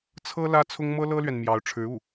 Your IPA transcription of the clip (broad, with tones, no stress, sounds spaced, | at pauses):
t͡sʰ ɤ˥ l ä˥ t͡sʰ ʊ˥ ŋ m ɤ˥ l ɤ˥ l ɥ ɛ˨ n m j ɑ˧˥ ʊ̯ ʈ͡ʂʰ ɻ̩˧˥ u˥˩